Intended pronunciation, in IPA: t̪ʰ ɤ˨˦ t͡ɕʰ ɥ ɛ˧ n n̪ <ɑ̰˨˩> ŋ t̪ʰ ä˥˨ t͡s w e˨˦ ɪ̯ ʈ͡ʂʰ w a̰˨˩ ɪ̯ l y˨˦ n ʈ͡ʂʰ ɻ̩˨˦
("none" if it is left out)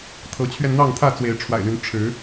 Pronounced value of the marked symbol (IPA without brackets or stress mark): ɑ˥˨